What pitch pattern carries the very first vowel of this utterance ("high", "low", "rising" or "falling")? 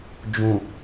low